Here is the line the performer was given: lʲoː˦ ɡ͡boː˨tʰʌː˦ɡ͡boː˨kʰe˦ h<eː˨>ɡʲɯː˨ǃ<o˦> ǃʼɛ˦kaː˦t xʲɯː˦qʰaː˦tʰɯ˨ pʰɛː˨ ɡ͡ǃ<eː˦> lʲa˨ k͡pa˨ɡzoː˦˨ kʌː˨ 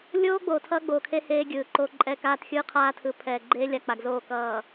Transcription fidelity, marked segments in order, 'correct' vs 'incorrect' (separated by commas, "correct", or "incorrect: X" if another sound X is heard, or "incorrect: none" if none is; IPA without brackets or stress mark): incorrect: eː˦, correct, correct